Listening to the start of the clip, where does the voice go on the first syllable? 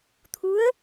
rising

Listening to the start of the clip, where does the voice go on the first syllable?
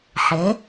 rising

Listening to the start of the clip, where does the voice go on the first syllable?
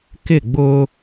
falling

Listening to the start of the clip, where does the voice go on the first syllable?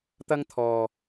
high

